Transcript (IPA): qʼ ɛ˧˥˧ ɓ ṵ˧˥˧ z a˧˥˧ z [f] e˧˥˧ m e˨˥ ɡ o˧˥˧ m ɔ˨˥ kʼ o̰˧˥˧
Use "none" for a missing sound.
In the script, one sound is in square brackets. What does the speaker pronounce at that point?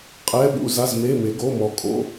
m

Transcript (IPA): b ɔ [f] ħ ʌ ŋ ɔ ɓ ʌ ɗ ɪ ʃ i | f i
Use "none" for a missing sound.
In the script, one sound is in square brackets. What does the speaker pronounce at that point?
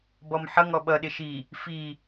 m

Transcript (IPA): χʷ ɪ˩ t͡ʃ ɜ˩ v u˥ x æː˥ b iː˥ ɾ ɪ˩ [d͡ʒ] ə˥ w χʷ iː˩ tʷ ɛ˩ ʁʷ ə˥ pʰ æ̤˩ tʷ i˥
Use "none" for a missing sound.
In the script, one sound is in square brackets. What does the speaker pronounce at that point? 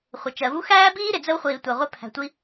d͡z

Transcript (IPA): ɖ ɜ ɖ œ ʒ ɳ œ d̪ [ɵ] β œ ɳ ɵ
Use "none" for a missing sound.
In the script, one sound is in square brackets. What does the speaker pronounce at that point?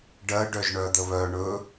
ə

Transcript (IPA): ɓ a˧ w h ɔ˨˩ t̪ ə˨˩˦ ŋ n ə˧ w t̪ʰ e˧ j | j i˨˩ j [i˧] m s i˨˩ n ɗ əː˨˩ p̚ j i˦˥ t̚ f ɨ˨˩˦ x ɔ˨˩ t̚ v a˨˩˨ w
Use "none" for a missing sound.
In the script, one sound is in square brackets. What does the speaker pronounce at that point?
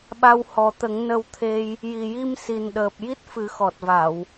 i˧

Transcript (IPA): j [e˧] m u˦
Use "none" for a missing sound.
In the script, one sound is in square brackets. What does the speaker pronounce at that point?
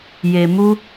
e˧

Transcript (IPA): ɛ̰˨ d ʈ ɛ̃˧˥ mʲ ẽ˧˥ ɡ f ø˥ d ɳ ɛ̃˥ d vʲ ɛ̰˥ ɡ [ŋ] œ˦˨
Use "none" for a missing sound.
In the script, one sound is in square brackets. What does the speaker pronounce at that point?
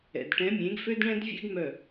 m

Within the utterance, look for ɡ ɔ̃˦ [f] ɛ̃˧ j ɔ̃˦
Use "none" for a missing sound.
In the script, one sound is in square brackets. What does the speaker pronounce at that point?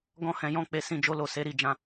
h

